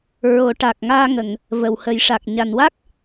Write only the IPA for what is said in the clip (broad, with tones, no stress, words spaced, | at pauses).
ɹo˨˩˦ʈa˨˩k̚ŋaː˧ŋə˨˩˨ŋ | və˨˩whə˨˩˦jʂa˨˩k̚ ɲa˨˩nwa˦˥k̚